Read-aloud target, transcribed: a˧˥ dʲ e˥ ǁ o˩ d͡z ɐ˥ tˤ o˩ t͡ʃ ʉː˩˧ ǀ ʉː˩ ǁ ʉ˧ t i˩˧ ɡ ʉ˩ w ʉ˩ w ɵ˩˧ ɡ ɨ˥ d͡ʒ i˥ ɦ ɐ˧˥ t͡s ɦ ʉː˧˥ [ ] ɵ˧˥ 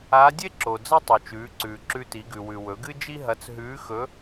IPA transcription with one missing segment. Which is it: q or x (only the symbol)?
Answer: x